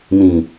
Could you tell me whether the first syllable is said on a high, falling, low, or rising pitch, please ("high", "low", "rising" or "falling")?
low